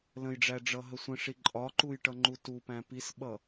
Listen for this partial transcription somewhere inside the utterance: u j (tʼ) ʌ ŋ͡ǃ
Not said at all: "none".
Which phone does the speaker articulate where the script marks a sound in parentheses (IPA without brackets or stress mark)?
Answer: ʈ